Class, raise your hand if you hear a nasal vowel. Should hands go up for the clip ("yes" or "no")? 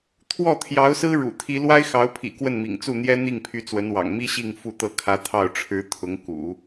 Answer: no